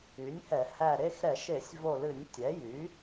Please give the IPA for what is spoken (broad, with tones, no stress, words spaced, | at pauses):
y˩˥nʲhɛ˧˩˧hæ˦˨ ɾe˦˨xɾɛ˧˩˧ʃe˧˩˧sʲ vo˦˨ lɨ˧˩˧nʲtʲɛ˩˥jy˩˥